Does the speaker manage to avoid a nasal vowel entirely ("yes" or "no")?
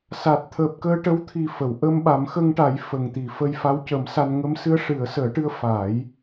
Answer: yes